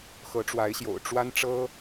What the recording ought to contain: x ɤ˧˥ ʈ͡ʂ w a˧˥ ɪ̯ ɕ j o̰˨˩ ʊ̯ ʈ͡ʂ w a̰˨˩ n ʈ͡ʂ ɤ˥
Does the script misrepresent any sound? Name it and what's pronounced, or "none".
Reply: a̰˨˩ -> a˥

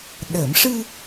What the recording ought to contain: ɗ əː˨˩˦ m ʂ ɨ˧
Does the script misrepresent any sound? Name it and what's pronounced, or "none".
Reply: none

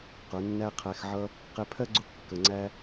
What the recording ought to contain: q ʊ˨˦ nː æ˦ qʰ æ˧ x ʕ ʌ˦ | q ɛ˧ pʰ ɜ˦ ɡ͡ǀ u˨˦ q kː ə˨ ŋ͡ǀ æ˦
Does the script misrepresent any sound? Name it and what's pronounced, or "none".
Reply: none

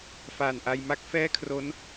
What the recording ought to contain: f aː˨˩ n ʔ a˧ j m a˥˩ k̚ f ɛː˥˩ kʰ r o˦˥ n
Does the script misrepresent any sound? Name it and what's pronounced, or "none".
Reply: none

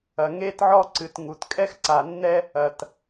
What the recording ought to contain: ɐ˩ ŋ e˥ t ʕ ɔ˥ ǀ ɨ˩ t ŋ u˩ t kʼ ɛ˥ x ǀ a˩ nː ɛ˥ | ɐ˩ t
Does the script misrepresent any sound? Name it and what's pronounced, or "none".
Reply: none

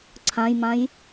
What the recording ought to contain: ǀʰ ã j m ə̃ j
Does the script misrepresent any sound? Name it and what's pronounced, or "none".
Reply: ə̃ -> ã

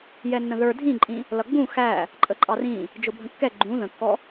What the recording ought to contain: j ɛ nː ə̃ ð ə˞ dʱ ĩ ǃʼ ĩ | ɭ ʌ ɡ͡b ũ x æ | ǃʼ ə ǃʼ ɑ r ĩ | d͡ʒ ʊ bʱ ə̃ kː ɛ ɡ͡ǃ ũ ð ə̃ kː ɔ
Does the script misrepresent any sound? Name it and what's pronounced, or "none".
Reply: ɭ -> l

